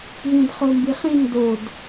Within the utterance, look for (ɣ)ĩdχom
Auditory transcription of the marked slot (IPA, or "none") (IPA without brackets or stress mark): ɣ